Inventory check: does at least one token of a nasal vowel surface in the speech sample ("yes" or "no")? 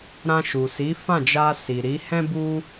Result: yes